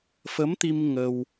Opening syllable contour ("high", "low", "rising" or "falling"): rising